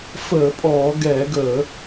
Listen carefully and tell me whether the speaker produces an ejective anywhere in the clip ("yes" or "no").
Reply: yes